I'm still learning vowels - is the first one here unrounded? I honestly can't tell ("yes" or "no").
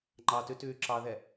yes